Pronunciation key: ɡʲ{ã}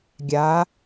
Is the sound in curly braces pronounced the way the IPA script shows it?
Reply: no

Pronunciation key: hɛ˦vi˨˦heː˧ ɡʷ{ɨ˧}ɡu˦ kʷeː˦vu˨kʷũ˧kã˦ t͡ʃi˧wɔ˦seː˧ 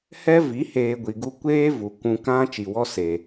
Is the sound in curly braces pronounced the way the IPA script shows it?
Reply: no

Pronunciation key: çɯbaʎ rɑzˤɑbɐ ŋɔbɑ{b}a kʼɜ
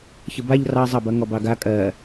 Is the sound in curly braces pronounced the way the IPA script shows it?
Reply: no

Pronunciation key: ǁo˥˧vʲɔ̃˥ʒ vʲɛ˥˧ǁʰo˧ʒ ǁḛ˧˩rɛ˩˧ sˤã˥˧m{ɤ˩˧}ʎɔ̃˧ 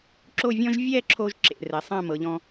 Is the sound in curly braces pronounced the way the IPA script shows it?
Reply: yes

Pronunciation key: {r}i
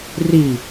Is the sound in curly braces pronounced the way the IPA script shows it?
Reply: yes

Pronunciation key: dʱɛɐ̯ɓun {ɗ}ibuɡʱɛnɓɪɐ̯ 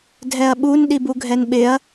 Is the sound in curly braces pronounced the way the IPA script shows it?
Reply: yes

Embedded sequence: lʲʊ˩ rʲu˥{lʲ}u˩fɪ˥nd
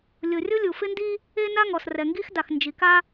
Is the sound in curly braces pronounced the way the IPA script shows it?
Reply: yes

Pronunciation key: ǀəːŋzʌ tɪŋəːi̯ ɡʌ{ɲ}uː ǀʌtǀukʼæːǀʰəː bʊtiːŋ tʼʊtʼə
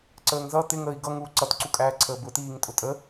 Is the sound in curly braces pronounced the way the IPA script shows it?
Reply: no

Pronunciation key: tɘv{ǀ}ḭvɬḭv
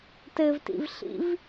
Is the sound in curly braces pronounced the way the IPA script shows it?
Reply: no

